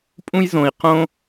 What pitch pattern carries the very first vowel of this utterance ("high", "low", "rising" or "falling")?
high